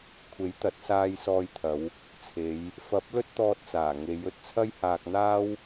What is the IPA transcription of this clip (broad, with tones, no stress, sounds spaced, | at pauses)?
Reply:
kʷʰ e˨˥ j t̪ ɐ˨˥ t̚ s aː˧ j s ɔː˧ j t̪ʰ ɐ˨˧ w | t͡sʰ e˨˧ j | f ɐ˨˥ p̚ l ɵ˥ t̚ t̪ ɔː˧ t̚ t͡s aː˨˩ ŋ e˨˧ j ɵ˧ t̚ t͡sʰ ɐ˥ j h aː˧ k̚ n̪ aː˥ w